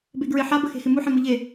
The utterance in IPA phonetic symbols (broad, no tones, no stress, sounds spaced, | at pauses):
b e ɡ ɹ ɪ ħ a b ə x e̤ x ɪ m u ħ ẽ m ʊ ʎ e